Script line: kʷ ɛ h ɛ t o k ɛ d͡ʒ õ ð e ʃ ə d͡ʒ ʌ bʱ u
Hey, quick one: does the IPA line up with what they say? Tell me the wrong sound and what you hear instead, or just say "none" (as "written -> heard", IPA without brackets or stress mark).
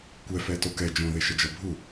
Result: h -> f